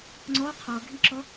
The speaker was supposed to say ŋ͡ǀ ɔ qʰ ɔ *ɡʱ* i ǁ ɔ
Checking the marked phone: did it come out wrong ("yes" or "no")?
no